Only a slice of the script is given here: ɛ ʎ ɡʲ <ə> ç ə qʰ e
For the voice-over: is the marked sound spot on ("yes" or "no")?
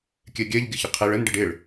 yes